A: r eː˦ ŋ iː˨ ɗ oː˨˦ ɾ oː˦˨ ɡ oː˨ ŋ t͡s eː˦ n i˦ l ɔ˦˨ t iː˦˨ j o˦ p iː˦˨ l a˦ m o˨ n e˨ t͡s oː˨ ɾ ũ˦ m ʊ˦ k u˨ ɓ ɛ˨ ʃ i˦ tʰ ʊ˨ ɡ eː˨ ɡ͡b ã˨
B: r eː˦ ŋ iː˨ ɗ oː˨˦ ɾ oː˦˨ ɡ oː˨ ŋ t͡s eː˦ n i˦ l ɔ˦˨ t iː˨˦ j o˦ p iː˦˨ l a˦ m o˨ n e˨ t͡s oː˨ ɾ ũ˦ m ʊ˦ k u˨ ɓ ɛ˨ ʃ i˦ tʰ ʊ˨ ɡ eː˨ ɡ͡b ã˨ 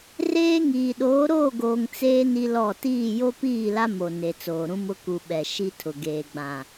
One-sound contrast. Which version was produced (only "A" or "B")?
A